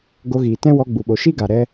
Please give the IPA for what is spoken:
ɡ o˧ ɣ iː˨ t ɛ̃˦ w ɔ˧ ɡ͡b u˨ ɓ o˨ ʃ i˦ ɡ a˨ ɾ ɛ˧

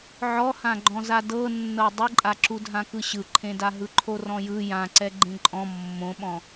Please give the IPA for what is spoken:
ʕ ɔ h ã ɡ͡ǃ ɔ̃ z a d ɤ nː ɤ dˤ ɯ ǃʼ a ǁ u dʱ ã k ɯ ɕ ɯ ǃʰ ẽ d a ɦ ɯ ǃʰ o r ɔ̃ j ɯ j ã ǀ ɛ ɡ͡ǃ ẽ ǃʼ ɔ̃ mː õ ɓ ɔ̃

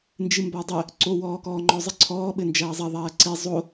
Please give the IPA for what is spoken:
n d͡ʒ ɨ m b a dˤ ɘ | ǀ o w ɔː k ɔː ŋ͡ǃ ɔ zˤ ɘ ǀʰ ɔː ɓ ɘ n d͡ʒ ɐː zˤ ɐ ðˤ ɐː ǀ i zˤ o

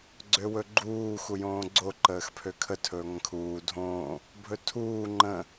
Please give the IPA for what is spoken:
ɡ͡ǀ ø w ɵ ɡ͡ǃ uː x u j õː ɡ͡ǀ o ǃ əː x pʰ ø kʰ ə tʰ ɵː ŋʷ ə̃ kʰ uː dʱ õː | bʱ ɵ tʰ uː ŋ͡ǃ ə̃

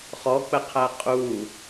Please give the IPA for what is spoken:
χ ɔ k͡p ə qʰ æ qʼ u

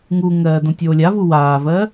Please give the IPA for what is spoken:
ŋ u ŋ ɜː d õ tʲ oː lʲ a v u w aː v ɜː

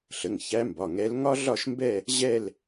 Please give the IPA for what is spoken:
ɬ ə˩˧˩ ŋ ç æ˧˥ m b ɒ˩˧˩ ŋ ɛ˧˥ l ŋ ɒ˥ ɮ ɒ˥˧ ʃ m b ɛ˥˧ | ʑ ɛ˥˧ l

